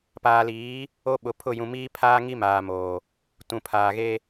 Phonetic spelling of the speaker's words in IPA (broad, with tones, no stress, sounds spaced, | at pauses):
p aː˨ l iː˨˦ | o˨ ɓ ʊ˨ pʰ ʊ˦˨ j ũ˨ m iː˦ pʰ aː˦ ŋ i˦ m aː˨ m oː˨ | t ũ˨ pʰ aː˨ ɣ e˦